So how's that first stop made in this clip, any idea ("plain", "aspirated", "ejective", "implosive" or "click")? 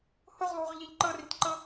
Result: click